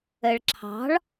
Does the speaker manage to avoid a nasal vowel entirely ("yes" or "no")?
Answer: yes